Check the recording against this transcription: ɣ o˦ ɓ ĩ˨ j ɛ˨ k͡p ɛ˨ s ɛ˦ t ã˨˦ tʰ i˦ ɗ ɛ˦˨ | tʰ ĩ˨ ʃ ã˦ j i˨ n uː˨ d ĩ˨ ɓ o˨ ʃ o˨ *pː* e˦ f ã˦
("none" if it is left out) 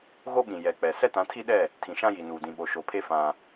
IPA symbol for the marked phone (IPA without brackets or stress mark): pʰ